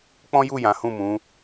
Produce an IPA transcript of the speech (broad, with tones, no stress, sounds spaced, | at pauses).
k͡p ɔ̃˦ j u˦˨ j ã˨˦ h ũ˦˨ m ũ˨˦